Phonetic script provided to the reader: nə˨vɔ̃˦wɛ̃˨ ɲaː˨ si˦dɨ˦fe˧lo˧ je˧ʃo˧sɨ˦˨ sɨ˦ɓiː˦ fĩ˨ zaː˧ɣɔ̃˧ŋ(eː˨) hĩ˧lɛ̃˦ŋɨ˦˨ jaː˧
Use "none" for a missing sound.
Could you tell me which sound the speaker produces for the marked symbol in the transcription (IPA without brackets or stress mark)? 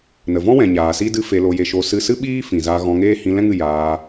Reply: eː˦